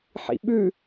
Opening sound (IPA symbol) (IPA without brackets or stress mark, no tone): ħ